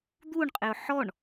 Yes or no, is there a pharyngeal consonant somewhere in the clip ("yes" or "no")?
yes